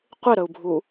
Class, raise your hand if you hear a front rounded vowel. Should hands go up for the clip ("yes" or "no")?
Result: no